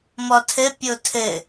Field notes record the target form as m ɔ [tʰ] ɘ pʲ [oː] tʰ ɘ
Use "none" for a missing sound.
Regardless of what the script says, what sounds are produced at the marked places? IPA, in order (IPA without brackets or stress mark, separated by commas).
tʰ, o